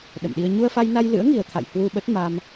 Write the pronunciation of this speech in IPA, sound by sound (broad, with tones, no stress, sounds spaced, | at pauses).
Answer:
ɗ ə̰˧˨ m ɗ i˧ ə̯ ɲ u˧ ə̯ f a˧ j n a˧ j l ɨ̰˧˥ ə̯ ŋ i˨˩ ə̯ t̪ʰ a̰˧˨ j h w u˧ ɓ ə˦˥ t̚ m a˧ m